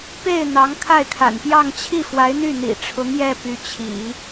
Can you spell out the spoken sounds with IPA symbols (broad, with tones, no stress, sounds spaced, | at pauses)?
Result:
p e˥˩ ɪ̯ n̪ ɑ˧˥ ŋ kʰ a˥˩ ɪ̯ kʰ a̰˨˩ n p j ɑ˥˧ ŋ t͡ɕʰ i˥˩ f w a˧˥ ɪ̯ n̪ y˥˩ n̪ ḭ˨˩ ʈ͡ʂʰ ʊ˧˥ ŋ j ɛ˥˩ p y˧˥ t͡ɕʰ ḭ˨˩˦